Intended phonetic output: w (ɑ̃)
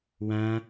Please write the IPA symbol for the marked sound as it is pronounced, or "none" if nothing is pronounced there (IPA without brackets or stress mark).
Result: ã